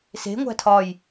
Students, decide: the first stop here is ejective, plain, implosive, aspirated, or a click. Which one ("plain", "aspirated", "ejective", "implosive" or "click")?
aspirated